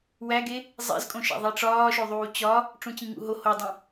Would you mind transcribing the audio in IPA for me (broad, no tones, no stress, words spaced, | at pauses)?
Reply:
wæɡe | zˤḛzkʼõʃæ̰ ðˤiʈ͡ʂɒːʃoðˤuː t͡ɕɒ | ʈ͡ʂũt͡ɕĩŋṵɦo hodˤĩ